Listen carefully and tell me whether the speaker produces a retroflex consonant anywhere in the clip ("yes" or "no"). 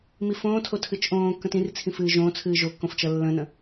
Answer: no